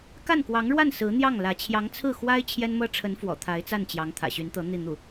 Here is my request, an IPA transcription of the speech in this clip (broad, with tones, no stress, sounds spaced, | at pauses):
k a˥˩ n k w ɑ˧˥ ŋ ɻ w a˥˩ n s ɹ̩˧˥ n̪ j ɑ˥˩ ŋ l ä˧˥ t͡ɕʰ j ɑ˧˥ ŋ t͡sʰ ɹ̩˥˩ x w a˥ ɪ̯ t͡ɕʰ j ɛ˥ n m ɤ˥ ʈ͡ʂʰ ə˧˥ n f w ɔ̰˨˩ t̪ʰ a˧˥ ɪ̯ t͡s a˥˩ n t͡ɕ j ɑ˧˥ ŋ t̪ʰ ä̰˨˩ ɕ y˧˥ n t̪ ɤ˧˥ n̪ i˥˧ n̪ u˥˩